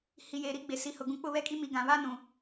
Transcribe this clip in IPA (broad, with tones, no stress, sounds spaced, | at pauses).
h i˨ j eː˨ ɾ i˦ ɡ͡b e˨ s i˨ h ʊ˨ ɡ ũ˨ k͡p ʊ˦˨ β ɛ˦ kʼ i˦ m i˨ ɡ ã˨ β a˦ n ũ˨